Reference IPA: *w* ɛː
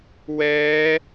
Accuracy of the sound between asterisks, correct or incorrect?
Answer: correct